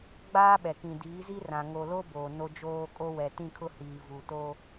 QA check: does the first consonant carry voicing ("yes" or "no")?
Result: yes